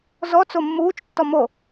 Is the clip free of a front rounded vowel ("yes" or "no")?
yes